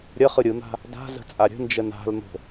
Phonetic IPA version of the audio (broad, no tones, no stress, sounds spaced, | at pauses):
ɾʲ ə χ ɯ ɾʲ ɯ n̪ a̤ | d a̤ z ə̤ t͡sʼ a ɾʲ ə̤ n d͡ʒ ə n a̤ l n̪ o̤